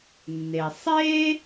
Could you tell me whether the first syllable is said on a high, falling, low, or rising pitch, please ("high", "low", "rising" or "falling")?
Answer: low